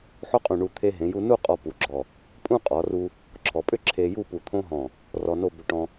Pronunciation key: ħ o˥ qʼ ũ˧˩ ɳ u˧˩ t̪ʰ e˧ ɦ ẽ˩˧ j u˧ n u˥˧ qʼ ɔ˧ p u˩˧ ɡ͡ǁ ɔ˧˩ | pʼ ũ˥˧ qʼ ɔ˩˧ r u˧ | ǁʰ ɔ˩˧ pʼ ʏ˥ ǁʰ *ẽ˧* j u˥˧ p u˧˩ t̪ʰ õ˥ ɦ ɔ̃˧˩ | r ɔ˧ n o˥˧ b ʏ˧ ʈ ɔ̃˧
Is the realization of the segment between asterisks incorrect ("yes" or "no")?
yes